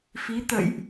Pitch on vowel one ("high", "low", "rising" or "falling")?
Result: rising